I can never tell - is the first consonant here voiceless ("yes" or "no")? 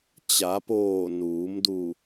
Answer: yes